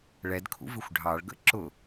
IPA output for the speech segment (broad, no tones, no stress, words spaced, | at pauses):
ɭɛdkʰṵvɪxʷ ɖʱɑɭ ɡə̰ǁʊ